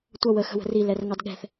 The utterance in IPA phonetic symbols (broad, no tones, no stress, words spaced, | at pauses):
tʷʌ wə xə̤wə̤ri lɛrŋɑdɠɛ̤θ